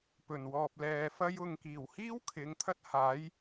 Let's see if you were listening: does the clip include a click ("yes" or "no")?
no